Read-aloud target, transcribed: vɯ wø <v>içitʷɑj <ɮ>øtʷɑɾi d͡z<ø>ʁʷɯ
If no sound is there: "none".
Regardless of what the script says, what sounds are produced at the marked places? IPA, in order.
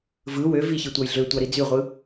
v, ɮ, y

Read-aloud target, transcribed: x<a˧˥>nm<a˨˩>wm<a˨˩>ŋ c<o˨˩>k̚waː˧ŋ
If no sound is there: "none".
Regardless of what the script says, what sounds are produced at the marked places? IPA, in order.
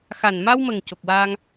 a˨˩, a˧, ə˨˩, o˨˩

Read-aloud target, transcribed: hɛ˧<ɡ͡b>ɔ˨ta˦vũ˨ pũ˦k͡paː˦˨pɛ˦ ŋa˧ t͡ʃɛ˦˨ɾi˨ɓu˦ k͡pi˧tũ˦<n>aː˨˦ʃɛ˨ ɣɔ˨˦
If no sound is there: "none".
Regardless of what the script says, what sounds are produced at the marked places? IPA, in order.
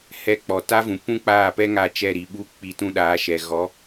k͡p, ɗ

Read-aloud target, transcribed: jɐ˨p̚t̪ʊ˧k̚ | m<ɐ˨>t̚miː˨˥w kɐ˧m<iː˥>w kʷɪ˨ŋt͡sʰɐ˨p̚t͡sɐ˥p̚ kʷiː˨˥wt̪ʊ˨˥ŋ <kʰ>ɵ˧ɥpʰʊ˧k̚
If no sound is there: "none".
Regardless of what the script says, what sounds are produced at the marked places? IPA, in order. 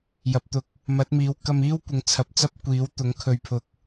ɐ˨˥, iː˥, kʰ

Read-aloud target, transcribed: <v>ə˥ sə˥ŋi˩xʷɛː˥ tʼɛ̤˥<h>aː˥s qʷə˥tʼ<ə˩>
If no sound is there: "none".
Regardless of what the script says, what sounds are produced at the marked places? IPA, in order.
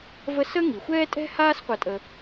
v, h, ə˥

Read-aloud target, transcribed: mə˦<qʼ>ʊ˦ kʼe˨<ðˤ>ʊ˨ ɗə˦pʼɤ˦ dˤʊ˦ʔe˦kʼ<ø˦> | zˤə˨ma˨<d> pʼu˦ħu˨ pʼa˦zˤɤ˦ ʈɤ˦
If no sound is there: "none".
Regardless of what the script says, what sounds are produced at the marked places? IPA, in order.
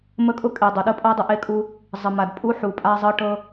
kʼ, dˤ, u˦, d

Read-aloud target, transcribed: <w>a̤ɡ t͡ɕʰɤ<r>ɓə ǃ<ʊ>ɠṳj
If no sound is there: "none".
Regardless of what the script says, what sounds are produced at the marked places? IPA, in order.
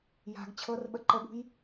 j, r, ə

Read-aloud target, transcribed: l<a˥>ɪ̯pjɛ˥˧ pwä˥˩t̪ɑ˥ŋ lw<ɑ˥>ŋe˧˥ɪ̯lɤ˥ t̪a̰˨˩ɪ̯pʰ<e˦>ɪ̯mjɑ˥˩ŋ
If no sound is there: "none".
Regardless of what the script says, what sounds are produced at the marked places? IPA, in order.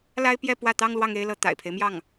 a˥, ɑ˥, e˦

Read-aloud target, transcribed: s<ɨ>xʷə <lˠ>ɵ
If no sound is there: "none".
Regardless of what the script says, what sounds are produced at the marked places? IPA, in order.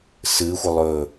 ɨ, lˠ

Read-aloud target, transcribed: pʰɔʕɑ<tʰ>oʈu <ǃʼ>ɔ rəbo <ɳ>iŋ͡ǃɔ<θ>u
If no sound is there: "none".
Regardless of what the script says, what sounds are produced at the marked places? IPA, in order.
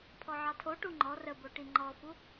tʰ, ŋ͡ǃ, ʈ, f

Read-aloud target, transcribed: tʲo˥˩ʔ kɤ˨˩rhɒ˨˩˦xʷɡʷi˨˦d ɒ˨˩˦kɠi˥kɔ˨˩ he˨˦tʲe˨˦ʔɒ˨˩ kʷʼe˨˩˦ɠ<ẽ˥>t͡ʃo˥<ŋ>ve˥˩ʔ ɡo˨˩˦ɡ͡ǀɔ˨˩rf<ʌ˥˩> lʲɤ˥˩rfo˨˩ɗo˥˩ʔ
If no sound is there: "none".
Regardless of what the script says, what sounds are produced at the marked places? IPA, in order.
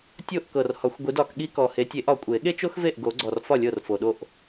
e˥, x, ɒ˥˩

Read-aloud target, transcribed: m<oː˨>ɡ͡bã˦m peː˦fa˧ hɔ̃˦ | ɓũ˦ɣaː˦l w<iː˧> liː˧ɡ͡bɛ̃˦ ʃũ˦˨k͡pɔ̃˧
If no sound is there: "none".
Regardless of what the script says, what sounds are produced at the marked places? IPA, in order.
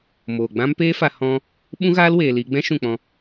oː˨, eː˧

